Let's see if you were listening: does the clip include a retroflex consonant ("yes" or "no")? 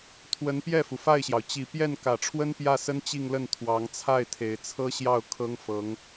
yes